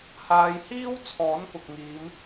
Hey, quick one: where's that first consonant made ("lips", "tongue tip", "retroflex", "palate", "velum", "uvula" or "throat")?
throat